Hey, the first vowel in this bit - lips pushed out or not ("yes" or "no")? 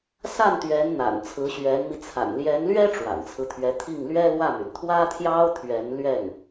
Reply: no